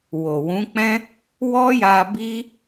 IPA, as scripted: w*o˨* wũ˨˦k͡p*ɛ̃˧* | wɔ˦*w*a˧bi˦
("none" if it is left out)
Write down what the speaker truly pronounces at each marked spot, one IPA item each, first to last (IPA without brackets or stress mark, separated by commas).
o˨, ɛ̃˦, j